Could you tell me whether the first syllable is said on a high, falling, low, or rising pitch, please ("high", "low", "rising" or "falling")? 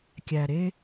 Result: low